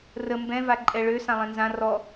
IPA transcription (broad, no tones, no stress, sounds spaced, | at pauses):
r ə m b ɛ̃ v a ǃʼ ɛ ɭ ø s ã lˠ ɛ̃ n z ã r ɔ